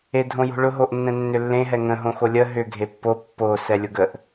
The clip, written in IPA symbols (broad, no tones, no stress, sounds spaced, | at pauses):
e dʱ õ j o̤ ɭ ʊ ɦ o ʔ nː ɛ̃ nː ʏ lː ẽ ɦ ɛ ŋ ə̃ ɦ õ x o lʲ ə ɦ ʏ ɡʱ e pː o pː o s ɛ lʲ ʊ ɡ ə ʔ